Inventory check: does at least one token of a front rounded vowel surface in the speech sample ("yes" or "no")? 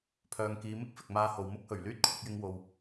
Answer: yes